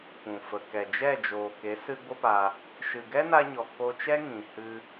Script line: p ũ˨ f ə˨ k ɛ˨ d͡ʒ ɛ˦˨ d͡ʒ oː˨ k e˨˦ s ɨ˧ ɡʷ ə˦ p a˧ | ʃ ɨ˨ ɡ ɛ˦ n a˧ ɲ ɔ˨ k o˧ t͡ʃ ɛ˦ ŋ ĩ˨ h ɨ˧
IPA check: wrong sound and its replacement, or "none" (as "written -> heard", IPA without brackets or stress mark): none